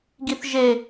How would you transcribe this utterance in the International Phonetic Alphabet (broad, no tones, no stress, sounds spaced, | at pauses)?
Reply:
ɡ i θ ʒ e